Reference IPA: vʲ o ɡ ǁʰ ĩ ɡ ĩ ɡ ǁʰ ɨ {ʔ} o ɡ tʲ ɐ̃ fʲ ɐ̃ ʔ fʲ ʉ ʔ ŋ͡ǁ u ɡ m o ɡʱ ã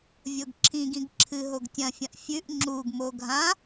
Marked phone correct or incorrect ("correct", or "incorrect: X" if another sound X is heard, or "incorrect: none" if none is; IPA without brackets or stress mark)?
incorrect: ɦ